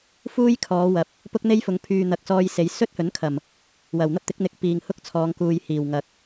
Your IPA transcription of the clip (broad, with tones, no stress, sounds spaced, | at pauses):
f uː˥ j kʰ ɔː˨˧ w ɐ˨ p̚ | p ʊ˥ k̚ n̪ e˥ j f ʊ˨˧ ŋ pʰ yː˨ n̪ ɐ˨ k̚ s ɔː˧ j s e˨˧ j s ɵ˥ t̚ h ɵ˨˥ n kʰ ɐ˨˩ m | w ɐ˨˩ w n̪ ɐ˥ p̚ t̪ ɪ˨˥ k̚ n̪ ɪ˨˥ k̚ p iː˨˩ ŋ h ʊ˥ k̚ t͡sʰ ɔː˨˧ ŋ k uː˨ j h iː˨˩ w ŋ ɐ˨ k̚